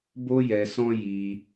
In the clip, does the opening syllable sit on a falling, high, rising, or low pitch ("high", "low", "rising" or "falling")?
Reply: high